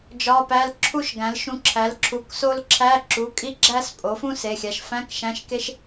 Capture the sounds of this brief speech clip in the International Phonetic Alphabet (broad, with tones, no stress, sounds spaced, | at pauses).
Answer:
d͡ʒ ɒ˧˥˧ p æ˧˥˧ l ǁʰ u˥ ʃ ɡ æ̃˩˥ l ʃ ũ˧ ǁʰ æ˩˥ l ǁʰ u˩˧˩ k s o˥ l ǁʰ æ˧˥˧ ǁ u˩˧˩ kʼ i˥ ɡ͡ǁ æ˥ s pʼ o˩˥ f ũ˥ s e˩˧˩ xʲ æ˩˧˩ ʃ f æ̃˧˥˧ k ʃ æ̃˧˥˧ ʃ k e˥ ʃ